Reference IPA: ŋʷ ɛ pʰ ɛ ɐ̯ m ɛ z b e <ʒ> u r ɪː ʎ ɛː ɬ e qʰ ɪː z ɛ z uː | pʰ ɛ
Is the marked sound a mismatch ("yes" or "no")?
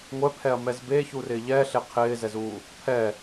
yes